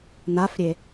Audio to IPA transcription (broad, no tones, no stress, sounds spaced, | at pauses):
n a f ɾʲ e